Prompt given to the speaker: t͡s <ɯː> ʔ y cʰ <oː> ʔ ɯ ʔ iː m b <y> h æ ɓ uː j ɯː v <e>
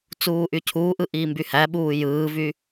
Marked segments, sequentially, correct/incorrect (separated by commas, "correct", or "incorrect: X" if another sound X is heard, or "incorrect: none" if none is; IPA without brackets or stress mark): incorrect: uː, incorrect: uː, correct, incorrect: y